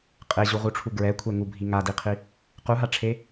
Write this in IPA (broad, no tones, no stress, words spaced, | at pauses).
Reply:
qʼeʑuʁuʈ͡ʂʰu ɡɹɛkʷʰɛŋubʱi ŋadiqʰi | quɦaʈ͡ʂʰe